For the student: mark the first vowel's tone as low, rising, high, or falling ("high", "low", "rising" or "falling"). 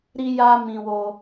high